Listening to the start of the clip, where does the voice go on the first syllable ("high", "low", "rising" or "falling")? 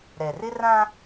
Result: low